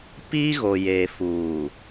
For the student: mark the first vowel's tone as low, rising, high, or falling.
high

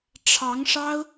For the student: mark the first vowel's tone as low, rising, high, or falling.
rising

